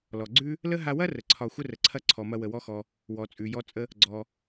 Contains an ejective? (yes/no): yes